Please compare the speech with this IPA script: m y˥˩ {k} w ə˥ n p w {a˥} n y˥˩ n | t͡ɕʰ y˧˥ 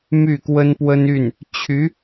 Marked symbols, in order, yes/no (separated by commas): yes, no